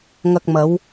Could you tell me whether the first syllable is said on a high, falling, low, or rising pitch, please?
low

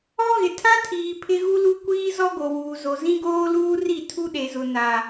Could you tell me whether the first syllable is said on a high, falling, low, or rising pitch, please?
high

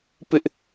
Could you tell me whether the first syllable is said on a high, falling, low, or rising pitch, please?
high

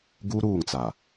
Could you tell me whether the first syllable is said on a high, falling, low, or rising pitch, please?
high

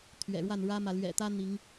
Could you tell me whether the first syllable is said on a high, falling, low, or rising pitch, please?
low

